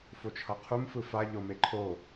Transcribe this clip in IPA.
f o t͡ʃʰ ʌ qʰ u m f ɯ f a ʎ o m e ǃʰ o

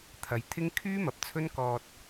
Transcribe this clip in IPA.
t̪ʰ ɐ˨˧ j t̪ʰ ɪ˥ ŋ kʰ yː˥ m ɐ˨ p̚ t͡sʰ ɵ˥ n k ɔː˧ t̚

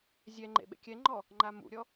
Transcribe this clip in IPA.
zʲ ɛ ŋ͡ǃ ḛ ɓ ḛ kʲ ɛ ŋ͡ǃ ɔ | ŋ͡ǃ a m ṵ ɾʲ ɔ

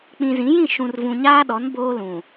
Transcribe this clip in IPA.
k͡p ĩ˨ z ĩ˨˦ j ĩ˦˨ ʃ ũ˨ r v ũ˨ ɲ aː˦ ɗ ɔ˨˦ n b oː˦ l ũ˨

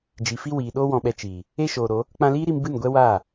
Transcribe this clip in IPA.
d͡ʒ i˨ f i˧ w iː˨ ɗ oː˧ w ɔ̃˨ ɓ ɛ˨ t͡ʃ iː˨ | e˧ ʃ oː˨ ɾ o˨˦ | k͡p ã˧ l iː˦ ɾ i˧ m b ɨ˦˨ n ɡʷ ɛ˦ w aː˦˨

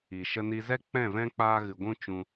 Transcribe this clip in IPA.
i˨ ʃ ə˧ n i˧ z ɛ˦ k͡p ɛ̃˦˨ v ɛ̃˦ k͡p aː˦ ɣ ɨ˧ ɡʷ ũ˦ t͡ʃ ũ˧

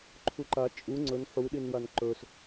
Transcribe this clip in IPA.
ǃʰ u ǃ a t͡ʃʼ u ŋ͡ǀ ɵ n ħ u ɗ i n w a n ǃ ɵ s

